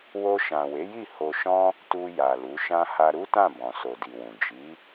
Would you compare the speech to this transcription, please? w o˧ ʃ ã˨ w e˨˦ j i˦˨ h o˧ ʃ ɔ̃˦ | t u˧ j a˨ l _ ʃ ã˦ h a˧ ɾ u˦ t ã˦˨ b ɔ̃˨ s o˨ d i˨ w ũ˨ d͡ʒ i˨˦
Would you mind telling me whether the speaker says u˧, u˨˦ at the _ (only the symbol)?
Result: u˨˦